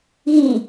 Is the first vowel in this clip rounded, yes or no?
no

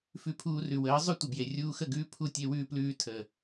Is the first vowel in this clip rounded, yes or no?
yes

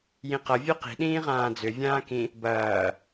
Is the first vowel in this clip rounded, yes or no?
no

